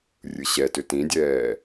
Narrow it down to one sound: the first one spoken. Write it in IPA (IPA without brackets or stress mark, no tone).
rʲ